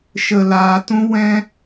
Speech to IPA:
ʃ ə˧ l aː˧ t ũ˦ w ɛ̃˦

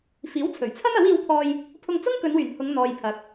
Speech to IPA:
f iː˨˥ w t͡sʰ ɵ˨˩ ɥ t͡sʰ ɐ˥ n ɐ˨˥ w iː˧ w t̪ʰ ɔː˧ j | pʰ ʊ˧ ŋ t͡s ʊ˥ ŋ k ɵ˨˧ n w yː˨˩ n h ʊ˨˧ ŋ n̪ ɔː˨ j pʰ ɐ˨ k̚

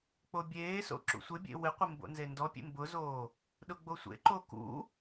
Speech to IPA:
k͡p o bʲ eː s o̰ ǁ ṵ sʷ ɪ bʲ ḛ w ɪ qʷ ɪ m b o̰ n z e n d ɔ pʲ ḛ m b ʊ z oː | ɗ ʊ ɡ͡b o sʷ ḛ ǃ o k ṵ

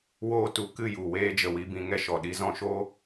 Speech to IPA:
w oː˧ t u˨ k ɨ˦˨ j u˨ w eː˧ d͡ʒ ə˨ w i˨ b ĩ˨ ŋ ɛ˧ ʃ ɔ˨ ɗ i˧ z ɔ̃˧ ʃ o˦

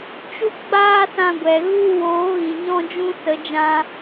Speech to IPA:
t͡ʃ u˦ ɡ͡b aː˦ s ã˧ ɡʷ ɛ˨ ɣ u˦ w oː˨˦ ɣ ĩ˨ ɲ ɔ̃˦ d͡ʒ ũ˦ s ə˨˦ d͡ʒ ã˧

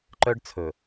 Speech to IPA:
ǃ œ˦ ɖ t͡sʰ ɵ˨

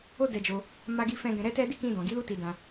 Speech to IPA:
o˦ d ɛ˧ d͡ʒ o˧ | m a˧ ɡ i˧ f ɛ̃˧ ɡ ɛ̃˧ ɾ ɛ˦ t ɛ˦ d i˦˨ k ĩ˧ d ɔ̃˨ ɡ i˨˦ l u˦ t i˧ d ã˧

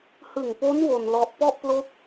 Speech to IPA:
h ɯ˨˩ ŋ p o˦˥ n w o˧ n l ɔ˦˥ ʔ p ɔ˥˩ ʔ p l o˦˥ k̚

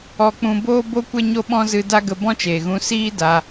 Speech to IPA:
ɔ˧ k͡p ũ˧ b oː˦ b o˦ kʷ e˦ ɲ o˦ ɓ ɔ̃˦ z ɨ˧ d a˦ ɡ ə˧ b ɔ̃˦ t͡ʃ eː˨ ɣ ũ˧ s iː˦ d a˧

